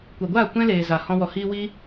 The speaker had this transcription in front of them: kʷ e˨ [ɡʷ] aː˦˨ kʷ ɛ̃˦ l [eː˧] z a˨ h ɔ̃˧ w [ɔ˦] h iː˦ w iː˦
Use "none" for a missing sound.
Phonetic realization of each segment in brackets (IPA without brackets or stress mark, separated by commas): ɡʷ, eː˨, ɔ˨